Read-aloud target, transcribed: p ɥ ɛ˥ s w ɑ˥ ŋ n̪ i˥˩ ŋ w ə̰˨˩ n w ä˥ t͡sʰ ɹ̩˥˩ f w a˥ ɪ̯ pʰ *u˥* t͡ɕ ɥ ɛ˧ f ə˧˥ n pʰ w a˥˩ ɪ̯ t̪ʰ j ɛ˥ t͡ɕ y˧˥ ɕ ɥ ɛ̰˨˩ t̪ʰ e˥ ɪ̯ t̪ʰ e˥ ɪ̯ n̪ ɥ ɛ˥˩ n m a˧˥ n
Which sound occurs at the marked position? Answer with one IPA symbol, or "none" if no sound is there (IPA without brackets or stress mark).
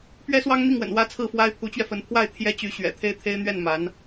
u˧˥